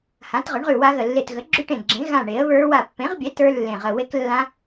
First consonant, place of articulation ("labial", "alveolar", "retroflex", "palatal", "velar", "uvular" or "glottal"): glottal